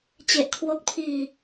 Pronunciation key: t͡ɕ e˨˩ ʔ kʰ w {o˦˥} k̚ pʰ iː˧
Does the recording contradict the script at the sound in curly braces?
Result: no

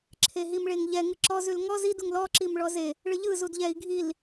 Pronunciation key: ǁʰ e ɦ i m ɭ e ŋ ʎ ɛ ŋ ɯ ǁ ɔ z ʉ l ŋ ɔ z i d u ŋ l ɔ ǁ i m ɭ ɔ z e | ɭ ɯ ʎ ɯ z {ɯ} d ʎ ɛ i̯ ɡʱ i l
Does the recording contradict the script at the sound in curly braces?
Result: yes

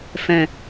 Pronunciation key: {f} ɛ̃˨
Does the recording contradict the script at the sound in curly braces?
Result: no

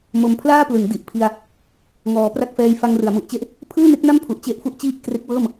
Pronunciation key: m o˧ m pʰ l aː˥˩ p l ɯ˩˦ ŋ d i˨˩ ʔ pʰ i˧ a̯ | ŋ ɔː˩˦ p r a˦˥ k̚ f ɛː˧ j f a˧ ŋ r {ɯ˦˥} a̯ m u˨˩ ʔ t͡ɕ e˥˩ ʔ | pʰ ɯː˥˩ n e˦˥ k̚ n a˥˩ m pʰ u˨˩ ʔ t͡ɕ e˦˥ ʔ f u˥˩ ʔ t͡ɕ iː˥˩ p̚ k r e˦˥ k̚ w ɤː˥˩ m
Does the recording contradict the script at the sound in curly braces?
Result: yes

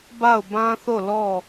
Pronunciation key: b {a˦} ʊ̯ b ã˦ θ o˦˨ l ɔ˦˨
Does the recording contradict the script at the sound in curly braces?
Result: yes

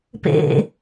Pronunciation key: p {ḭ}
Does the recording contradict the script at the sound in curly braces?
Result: yes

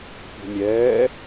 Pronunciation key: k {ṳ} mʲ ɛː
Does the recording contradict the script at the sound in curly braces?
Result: no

